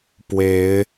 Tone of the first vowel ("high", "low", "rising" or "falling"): rising